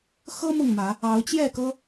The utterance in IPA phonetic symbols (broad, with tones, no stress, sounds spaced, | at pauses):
x ɤ˦ m ʊ˥˨ ŋ m ä˨˦ | ɑ˨˦ ʊ̯ t͡ɕ j ɛ˥˨ k ɤ˦